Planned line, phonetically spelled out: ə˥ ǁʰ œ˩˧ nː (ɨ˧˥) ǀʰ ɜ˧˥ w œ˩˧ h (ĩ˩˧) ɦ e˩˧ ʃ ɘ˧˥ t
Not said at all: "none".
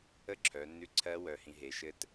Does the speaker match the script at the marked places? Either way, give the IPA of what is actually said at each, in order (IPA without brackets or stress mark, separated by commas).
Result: ʉ˧˥, ĩ˩˧